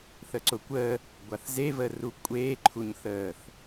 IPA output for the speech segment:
θəǀʊkʷəː | ɡʷaθzevəː rukʷʼeː ǃʰuɲθəːθ

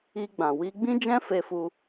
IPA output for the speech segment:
i˧ ɡ͡bã˨wi˧ ɡ͡bĩ˦d͡ʒɛ̃˦fe˧fu˧

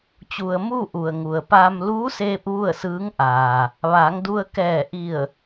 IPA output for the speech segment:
t͡ɕu˩ə̯muː˥˨ ʔu˩ə̯ŋu˩ə̯paː˧m luː˧˥seː˧p̚ ʋu˥˨ə̯sɯː˧˥ŋʔaː˩ | ʋaː˩˧ŋdu˧ə̯ kɛː˧˩ʔi˧˩ə̯

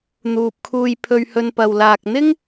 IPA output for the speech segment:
n̪uː˨p̚kʰuː˧j pʰɵ˧ɥhɵ˧npɐ˨w laː˨k̚n̪ɪ˥ŋ

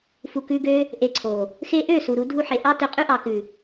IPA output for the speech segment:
fu˨kʉ˧ɡø˦ | ʔe˧ǀʰo˨ | xe˧ʔø˦˨ su˨ ɾu˧dʱu˧ħe˨ ʔɑ˦tø˧qʼʉ˦ ʔɑ˨kʉ˨

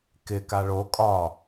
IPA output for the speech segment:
kɪ kaɭo kʼɒ

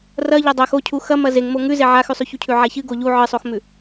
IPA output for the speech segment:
rɐʎɐ dˤax ocʰu xɐ mɐzeŋmo ŋʉze ʕaxʉsˤʉçu cʰʉʕaçɨ ɡoʎu ʕɨsˤoxmʉ

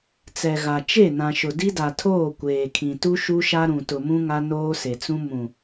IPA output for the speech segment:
t͡sɛ˨ɣa˨ t͡ʃe˦˨nã˨ʃʊ˨ di˦da˨tʰoː˦˨ kʷeː˨kʰĩ˨tu˦ ʃu˦ʃa˦ɾũ˨ tʊ˨mũ˦ ŋa˦noː˦se˨t͡sũ˦ mũ˨

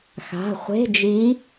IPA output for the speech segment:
xa̤˩˧˩χʷe̤˧˥˧d͡ʒi˧˥

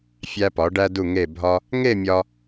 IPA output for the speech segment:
fʲæ˧pɒ˩˧ ɖæ˧du˧˩ŋe˧˩ bʱɒ˧ | ŋe˥˧mʲɒ˧

